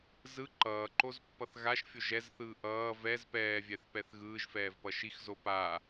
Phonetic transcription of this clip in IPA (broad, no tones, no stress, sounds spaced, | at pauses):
z ɯ ǃ ʌː ǃ o z pː ʌ θ ɣ a ʃ fʲ o ʒ ɛ z θ ɯː ʔ ʌː v ɛ z p ɛː vʲ ɛ θ p ɛ θ ɣ ɯː ʒ f ɛː v p ʌ ʃ i x z o p a